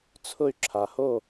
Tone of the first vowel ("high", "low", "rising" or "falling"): falling